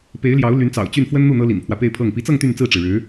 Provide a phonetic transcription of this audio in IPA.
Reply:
p e˧˥ ɪ̯ l j ɑ˧˥ ʊ̯ l y˧˥ n t͡s ɑ̰˨˩ ʊ̯ t͡ɕ y˥˩ n f w ə˥ n n̪ u˥˩ n̪ ɤ˥ l ḭ˨˩ n pʰ w ä˦ p e˥˧ ɪ̯ pʰ ɤ˥˩ ŋ p i˧˥ t͡s ɤ˥˧ ŋ t̪ y˥˧ n t͡s ɹ̩˥˩ ʈ͡ʂ ɻ̩˩ ɻ ɻ̩˧˥

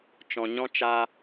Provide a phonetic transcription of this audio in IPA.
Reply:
t͡ʃ ɔ̃˧ ɲ ɔ̃˦ t͡ʃ a˦

